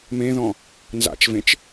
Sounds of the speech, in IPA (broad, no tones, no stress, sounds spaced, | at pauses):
m ẽ ð ɔ̃ | n z a̰ t͡ʃ v ẽ t͡ʃ